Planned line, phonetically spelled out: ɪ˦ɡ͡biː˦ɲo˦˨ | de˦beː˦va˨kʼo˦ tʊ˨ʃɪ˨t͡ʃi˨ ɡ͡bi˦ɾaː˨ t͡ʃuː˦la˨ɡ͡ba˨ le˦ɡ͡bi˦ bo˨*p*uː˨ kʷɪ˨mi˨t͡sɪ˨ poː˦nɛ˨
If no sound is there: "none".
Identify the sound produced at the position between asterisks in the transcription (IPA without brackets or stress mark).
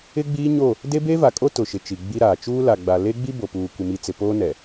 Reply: p